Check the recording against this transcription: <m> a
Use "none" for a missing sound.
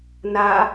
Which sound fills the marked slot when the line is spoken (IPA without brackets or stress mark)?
n